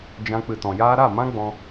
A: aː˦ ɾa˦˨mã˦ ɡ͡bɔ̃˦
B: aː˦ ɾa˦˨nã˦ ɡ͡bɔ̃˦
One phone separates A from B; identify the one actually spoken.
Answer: A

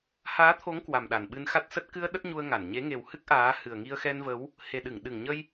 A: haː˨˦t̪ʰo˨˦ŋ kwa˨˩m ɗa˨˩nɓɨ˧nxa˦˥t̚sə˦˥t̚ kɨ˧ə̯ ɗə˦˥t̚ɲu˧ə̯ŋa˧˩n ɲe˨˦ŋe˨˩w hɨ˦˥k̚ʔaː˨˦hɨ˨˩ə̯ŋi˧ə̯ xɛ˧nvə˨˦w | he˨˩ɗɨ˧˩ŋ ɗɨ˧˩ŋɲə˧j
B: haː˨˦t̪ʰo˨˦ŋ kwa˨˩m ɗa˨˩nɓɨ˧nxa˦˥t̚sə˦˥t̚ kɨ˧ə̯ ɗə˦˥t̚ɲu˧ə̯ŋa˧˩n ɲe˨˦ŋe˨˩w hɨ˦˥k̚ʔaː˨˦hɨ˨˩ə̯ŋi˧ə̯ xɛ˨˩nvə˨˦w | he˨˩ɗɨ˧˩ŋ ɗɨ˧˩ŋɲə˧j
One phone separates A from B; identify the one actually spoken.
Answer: A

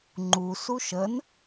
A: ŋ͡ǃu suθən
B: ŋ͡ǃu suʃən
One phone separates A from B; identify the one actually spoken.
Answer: B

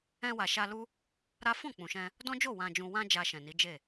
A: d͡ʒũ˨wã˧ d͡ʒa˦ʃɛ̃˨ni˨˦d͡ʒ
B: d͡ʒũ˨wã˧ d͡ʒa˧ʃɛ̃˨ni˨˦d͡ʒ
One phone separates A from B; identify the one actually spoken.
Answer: B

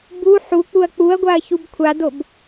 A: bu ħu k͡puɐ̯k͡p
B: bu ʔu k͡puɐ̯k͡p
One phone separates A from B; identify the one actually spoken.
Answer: A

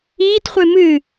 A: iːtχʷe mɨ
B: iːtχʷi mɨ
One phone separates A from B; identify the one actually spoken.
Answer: A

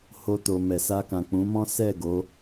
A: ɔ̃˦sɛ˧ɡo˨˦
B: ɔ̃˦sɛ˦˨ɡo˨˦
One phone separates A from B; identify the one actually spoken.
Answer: B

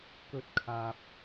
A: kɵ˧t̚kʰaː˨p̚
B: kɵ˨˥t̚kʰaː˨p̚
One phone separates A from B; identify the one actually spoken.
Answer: A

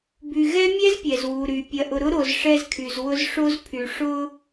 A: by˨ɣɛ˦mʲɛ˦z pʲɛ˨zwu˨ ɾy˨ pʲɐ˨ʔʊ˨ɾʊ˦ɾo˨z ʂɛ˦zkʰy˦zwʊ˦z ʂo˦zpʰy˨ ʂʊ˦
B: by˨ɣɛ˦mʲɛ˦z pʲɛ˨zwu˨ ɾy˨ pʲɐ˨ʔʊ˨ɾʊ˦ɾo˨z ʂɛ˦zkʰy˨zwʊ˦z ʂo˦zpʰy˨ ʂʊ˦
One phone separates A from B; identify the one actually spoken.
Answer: B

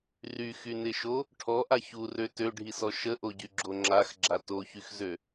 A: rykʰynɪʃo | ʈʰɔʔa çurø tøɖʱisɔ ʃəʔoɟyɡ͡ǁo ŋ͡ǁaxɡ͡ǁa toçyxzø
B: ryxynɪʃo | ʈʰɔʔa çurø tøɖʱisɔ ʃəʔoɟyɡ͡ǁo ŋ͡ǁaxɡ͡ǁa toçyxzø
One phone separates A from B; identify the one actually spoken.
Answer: B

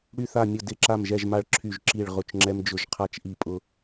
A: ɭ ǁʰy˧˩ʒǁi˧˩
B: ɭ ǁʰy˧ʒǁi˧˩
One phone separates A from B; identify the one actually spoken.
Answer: A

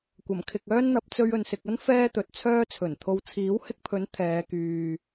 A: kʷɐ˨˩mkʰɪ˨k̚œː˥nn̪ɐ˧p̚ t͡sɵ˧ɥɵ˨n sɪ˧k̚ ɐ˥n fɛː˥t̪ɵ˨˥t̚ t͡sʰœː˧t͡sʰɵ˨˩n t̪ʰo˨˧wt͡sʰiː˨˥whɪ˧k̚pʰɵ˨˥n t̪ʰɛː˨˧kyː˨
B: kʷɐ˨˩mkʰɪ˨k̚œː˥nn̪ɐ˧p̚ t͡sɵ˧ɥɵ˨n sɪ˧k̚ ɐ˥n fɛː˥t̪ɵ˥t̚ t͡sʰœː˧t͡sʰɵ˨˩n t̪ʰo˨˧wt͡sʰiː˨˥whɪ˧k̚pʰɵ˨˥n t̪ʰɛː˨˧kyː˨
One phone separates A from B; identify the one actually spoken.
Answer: A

